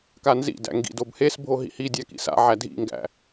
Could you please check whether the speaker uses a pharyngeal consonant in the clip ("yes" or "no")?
yes